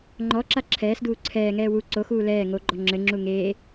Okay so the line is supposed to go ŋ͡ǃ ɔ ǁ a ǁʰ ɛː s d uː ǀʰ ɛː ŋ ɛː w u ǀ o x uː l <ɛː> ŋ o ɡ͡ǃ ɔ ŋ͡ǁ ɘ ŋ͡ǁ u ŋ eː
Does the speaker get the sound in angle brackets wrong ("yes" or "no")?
no